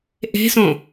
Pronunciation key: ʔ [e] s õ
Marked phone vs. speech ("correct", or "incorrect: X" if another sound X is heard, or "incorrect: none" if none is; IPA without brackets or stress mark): incorrect: e̤